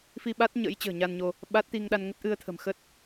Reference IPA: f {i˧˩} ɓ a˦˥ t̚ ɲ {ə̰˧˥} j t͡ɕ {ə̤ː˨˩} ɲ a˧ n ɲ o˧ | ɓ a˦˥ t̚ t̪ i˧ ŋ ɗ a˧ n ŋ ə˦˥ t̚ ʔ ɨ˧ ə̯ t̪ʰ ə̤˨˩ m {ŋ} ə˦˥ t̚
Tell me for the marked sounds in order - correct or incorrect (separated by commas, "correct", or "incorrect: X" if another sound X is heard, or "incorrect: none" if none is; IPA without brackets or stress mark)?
incorrect: i˧, correct, correct, incorrect: x